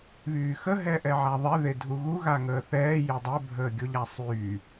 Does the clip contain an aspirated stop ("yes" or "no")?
no